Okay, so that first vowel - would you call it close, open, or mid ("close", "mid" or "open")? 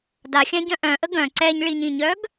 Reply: open